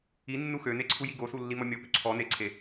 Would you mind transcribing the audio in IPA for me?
i nːuxøne ǀʰujiɡosu lːimɔmʲɔpø ǀʰɔ neǀʰe

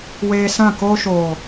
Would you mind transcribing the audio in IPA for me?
weː˧sã˦˨ koː˧ʃoː˨

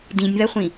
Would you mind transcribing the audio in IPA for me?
dĩnʲðɐχʷĩ

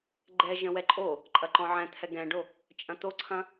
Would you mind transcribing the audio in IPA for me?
ɡ͡ǃɛ ʒə̃wɛǃʼo | ǃʼɐǃɔ̃ʕɛ̃ t̪ʰɛɡɛ̃ɖo | t͡ʃʼɐ̃t̪oǀʰɐ̃

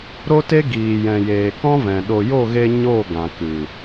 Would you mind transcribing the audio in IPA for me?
ɾo˦te˦ ɡiː˨jɛ̃˨jeː˨ kɔ̃˦vɛ̃˨ ɗo˨jo˦˨ɣe˧ ɲo˦˨ ɡã˨kɨ˨

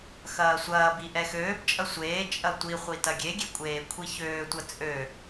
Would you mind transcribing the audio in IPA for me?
xɐːsʷɐːbi ʔɛxøːbt͡ʃʼɐ sʷeː t͡ʃʼɐtʷiχʷi tɐɡʲeɡʲe kʷʼeːkʷʰiçøːtʷɐ t͡sʼø

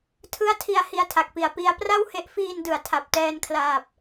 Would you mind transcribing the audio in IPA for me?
tʰɯ˦˥a̯tʰi˧a̯ hi˧a̯tʰa˨˩k̚pi˨˩a̯ pi˧a̯pra˥˩whe˦˥ʔ fiː˧n dɯ˩˦a̯tʰa˨˩p̚tɛː˧nkʰlaː˨˩p̚

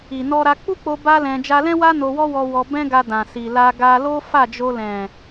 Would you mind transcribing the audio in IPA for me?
i˨nɔ˧ ɾa˧k͡pu˦k͡po˧ ba˦lɛ̃˧ d͡ʒa˧lɛ̃˦wa˦ no˧wɔ˦wɔ˧ wɔ˧ bɛ̃˦ɡa˧ dã˨si˨la˧ ɡa˧lo˦ fa˦˨d͡ʒo˧ lɛ̃˨

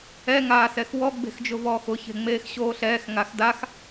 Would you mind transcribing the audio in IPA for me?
ɛ ŋaːsɛxwɔ ɡ͡be̤xd͡ʒʊvɔːxʊ çe̤ŋ͡meːxɕoːɬɛːx ŋaxdax

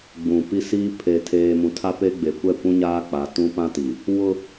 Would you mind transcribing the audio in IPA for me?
ɡ͡bũ˨pi˦siː˦ pʰe˨tʰeː˨ mũ˨tʰa˦pe˦ɡ͡be˨ kʷɛ˦˨kʷũ˦ ɲaː˦k͡pa˨˦ tũ˦pã˦ti˨ | wʊ˦

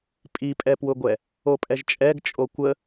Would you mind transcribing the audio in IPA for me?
pʼipʼɛpwʊɡʷɛ | opʼɛʒt͡ʃʼɛɡ t͡ʃʼokʷə

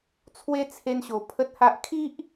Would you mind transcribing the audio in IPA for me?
t͡sʰwe˦t͡sʰe˧nɕo˨˩ pʰə˦t̚ha˦ʔ kʰi˦ʔ

